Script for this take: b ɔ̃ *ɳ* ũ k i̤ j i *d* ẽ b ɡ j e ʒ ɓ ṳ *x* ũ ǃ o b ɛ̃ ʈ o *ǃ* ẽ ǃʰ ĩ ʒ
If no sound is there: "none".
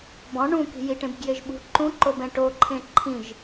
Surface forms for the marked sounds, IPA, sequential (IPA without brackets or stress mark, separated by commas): ɳ, ʈ, ǃ, ǃʰ